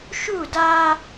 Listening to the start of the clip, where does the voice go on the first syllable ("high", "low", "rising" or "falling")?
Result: falling